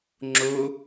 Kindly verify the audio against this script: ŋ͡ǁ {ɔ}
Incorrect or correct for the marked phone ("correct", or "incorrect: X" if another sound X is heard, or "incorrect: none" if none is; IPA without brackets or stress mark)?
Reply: incorrect: o